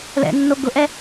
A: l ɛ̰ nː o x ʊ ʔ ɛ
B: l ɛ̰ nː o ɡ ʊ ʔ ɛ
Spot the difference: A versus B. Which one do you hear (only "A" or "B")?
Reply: B